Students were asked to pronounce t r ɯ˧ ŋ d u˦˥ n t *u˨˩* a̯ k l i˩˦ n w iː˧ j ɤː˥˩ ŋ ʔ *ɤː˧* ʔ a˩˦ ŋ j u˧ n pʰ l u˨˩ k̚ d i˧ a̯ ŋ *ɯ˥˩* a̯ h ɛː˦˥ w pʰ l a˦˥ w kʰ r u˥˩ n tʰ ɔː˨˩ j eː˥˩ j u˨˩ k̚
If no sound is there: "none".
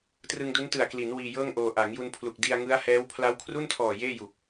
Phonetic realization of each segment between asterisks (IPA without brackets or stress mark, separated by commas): ɯ˨˩, oː˧, ɯ˦˥